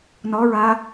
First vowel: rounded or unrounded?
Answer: rounded